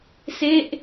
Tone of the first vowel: falling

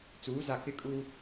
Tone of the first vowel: rising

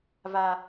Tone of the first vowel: high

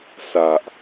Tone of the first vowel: low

